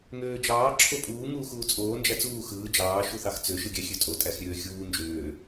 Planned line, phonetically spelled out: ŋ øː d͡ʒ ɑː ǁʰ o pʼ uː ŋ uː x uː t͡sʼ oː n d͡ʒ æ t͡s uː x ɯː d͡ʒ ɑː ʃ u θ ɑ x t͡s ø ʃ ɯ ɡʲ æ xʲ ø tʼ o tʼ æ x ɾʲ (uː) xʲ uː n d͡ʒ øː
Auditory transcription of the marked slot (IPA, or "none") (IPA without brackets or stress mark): øː